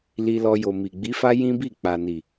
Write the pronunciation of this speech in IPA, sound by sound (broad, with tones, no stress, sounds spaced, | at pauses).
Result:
l i˧ l ɔ˧ j o˨ m i˨ ɡ͡b i˨˦ f a˦ j ĩ˦ b i˦˨ k͡p a˨ n i˨